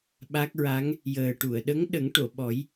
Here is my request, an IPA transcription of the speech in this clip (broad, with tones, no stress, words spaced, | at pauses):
ɓa˦˥k̚ɹa˧˥ŋ | jəː˨˩ʈu˨˩˨ə̯ ɗə˧˥ŋ ɗə˨˩˦ŋ ʈo˨˩˨ɓɔ˨˩˦j